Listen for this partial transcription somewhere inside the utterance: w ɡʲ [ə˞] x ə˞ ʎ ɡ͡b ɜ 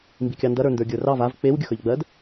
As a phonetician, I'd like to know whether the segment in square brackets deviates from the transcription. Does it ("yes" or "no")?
yes